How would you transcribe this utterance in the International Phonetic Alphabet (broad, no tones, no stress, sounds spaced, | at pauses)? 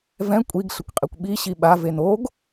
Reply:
v ɛ̃ kʷʼ i ɡ ɬ ə kʷ qʼ i kʷ ɓ i ɕ i ɓ a v e n o ɡ